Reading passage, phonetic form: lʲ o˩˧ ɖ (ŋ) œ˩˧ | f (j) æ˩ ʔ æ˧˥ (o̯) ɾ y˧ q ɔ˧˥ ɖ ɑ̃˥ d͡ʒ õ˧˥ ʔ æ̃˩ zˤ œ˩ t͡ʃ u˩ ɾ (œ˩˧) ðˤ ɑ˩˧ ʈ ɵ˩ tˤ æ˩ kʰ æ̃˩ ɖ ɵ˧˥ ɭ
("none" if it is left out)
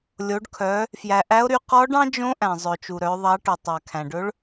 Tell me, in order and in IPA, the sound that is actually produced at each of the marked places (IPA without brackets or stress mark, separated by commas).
kʰ, j, o̯, œ˩˧